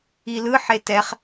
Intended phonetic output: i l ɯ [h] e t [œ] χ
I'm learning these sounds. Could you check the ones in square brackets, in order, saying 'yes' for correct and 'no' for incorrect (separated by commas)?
no, no